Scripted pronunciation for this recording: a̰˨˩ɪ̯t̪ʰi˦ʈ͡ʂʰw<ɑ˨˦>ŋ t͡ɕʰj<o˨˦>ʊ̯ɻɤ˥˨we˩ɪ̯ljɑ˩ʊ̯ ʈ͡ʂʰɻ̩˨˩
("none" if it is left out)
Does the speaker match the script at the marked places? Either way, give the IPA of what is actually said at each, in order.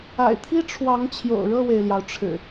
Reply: ɑ˨˦, o̰˨˩

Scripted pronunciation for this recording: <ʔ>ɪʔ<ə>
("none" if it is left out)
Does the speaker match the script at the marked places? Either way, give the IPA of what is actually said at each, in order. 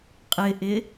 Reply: qʼ, ɪ

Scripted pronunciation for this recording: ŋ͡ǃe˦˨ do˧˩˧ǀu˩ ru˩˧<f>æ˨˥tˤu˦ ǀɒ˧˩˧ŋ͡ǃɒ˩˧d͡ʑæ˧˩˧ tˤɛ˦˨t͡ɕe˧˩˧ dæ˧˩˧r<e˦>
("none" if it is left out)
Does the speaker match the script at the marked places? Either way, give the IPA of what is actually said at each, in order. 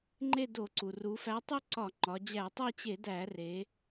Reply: f, e˩˧

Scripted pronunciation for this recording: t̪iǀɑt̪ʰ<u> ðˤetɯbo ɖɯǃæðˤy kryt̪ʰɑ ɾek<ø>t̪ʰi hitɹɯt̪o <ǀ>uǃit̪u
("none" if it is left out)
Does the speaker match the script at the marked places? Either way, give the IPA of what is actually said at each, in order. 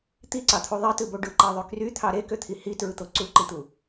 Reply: u, ø, ǀ

